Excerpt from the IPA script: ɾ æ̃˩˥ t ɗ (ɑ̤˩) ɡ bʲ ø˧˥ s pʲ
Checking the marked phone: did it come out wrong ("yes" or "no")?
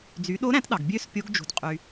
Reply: yes